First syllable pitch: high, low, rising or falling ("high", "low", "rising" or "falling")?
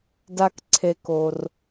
low